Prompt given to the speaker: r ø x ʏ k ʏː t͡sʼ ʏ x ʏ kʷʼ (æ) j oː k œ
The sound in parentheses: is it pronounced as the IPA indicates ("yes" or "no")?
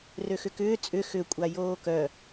no